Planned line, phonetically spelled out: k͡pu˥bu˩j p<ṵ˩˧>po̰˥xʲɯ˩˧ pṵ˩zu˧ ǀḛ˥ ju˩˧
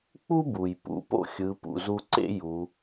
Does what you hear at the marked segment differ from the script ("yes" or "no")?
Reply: no